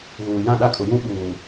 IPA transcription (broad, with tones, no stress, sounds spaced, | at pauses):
ɣ uː˨ j ã˦˨ ɗ a˦ kʼ ʊ˨ j ũ˦ ɓ uː˨